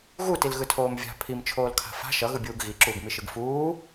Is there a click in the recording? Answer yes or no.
yes